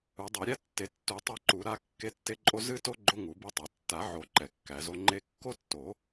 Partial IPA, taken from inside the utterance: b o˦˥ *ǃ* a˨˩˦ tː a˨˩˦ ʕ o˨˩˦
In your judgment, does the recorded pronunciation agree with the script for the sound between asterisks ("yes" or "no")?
no